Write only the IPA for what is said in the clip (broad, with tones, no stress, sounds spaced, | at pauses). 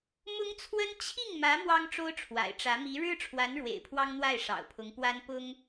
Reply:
m ʊ˥ ŋ t͡sʰ w ə˥ n t͡ɕʰ i˥˩ ŋ m ä˧˥ m w ɑ˥ ŋ ʈ͡ʂ o˥ ʊ̯ ʈ͡ʂʰ w a̰˨˩ ɪ̯ ʈ͡ʂ ä˧˥ m i˧˥ ɻ ɻ̩˥ ʈ͡ʂʰ w a˧˥ n ɻ w ḛ˨˩ ɪ̯ pʰ w ɑ˥ ŋ n̪ w a˥˩ ɪ̯ ʂ ɑ̰˨˩ ʊ̯ pʰ ʊ˧˥ ŋ p w a˥ n p ʊ˥ ŋ